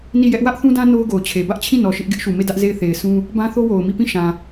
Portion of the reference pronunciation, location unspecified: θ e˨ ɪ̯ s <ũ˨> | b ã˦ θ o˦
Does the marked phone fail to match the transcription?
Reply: yes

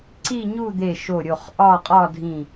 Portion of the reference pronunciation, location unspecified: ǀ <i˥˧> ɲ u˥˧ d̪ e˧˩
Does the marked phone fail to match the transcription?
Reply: no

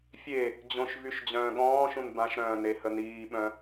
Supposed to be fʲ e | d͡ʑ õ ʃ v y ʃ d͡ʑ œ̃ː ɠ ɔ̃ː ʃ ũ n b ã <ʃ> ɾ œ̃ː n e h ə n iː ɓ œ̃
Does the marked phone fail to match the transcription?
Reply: no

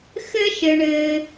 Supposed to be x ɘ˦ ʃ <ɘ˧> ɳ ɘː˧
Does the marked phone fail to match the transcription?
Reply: no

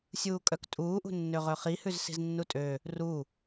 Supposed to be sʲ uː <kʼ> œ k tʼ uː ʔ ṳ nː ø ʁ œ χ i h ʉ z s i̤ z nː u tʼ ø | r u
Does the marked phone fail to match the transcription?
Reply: no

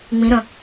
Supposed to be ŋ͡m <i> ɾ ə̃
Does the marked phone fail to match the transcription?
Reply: yes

